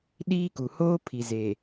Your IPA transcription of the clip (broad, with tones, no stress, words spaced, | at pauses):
ɗiː˦ku˨ hoː˦ pʰi˨ ze˨